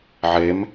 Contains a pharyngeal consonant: yes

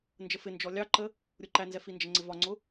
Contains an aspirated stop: no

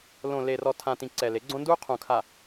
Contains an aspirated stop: yes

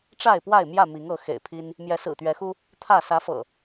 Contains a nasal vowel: no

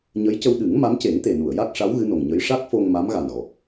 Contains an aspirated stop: no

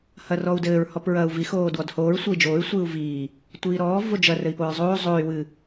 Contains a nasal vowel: no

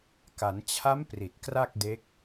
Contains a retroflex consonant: no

